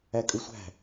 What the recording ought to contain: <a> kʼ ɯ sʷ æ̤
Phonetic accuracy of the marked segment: incorrect: æ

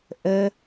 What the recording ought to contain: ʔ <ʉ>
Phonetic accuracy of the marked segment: incorrect: ə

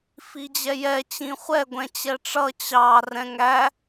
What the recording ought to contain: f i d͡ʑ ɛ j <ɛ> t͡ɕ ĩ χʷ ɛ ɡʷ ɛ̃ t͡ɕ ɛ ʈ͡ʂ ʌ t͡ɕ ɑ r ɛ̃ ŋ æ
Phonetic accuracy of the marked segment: correct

